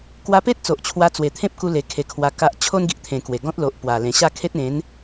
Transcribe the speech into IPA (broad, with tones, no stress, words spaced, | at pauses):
kwa˧pe˦t̚t͡so˨ʔ t͡ɕʰwa˧t͡swe˨˩t̪ʰẽ˦p̚ku˧ le˧kʰe˧kʰwa˧ ka˦ʔ t͡ɕʰo˦nɡi˨ʔt̪ʰẽ˨˩ kwe˨˩ɡɔ̃˦t̚ lo˨ʔ pwa˨˩lẽ˨˩ɕa˥˧kʰe˦t̚ ẽ˨˦n